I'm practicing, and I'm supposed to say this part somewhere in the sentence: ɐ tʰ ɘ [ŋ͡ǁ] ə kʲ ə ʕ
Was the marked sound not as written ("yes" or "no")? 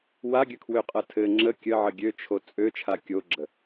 no